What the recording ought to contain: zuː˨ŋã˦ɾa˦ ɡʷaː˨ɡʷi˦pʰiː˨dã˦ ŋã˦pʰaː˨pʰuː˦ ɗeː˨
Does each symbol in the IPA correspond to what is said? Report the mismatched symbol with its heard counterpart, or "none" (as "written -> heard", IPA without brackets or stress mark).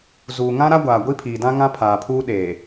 none